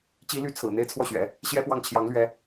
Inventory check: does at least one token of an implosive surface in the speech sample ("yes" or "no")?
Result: no